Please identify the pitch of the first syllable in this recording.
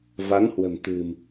rising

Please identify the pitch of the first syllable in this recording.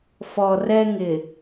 low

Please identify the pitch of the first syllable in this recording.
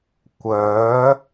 rising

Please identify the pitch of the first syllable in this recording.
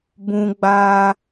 high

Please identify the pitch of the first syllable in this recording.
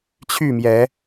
falling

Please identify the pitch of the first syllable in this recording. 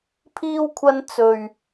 high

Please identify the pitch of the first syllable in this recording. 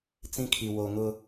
high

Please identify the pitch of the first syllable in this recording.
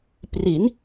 rising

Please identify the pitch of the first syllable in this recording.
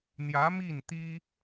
rising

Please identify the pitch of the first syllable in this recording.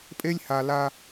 high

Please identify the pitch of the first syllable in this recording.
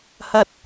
high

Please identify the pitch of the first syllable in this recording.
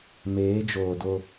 rising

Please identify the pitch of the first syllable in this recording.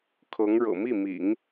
rising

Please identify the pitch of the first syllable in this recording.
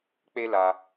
high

